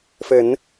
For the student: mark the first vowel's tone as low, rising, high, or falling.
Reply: rising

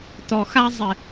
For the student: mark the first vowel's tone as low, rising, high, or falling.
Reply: low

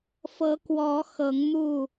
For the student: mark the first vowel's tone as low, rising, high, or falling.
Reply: rising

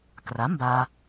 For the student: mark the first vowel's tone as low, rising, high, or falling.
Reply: rising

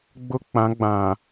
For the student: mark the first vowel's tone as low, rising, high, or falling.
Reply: high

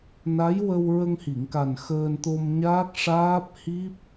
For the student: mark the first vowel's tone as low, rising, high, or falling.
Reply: rising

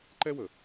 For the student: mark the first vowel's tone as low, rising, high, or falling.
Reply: high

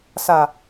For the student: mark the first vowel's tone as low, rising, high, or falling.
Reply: low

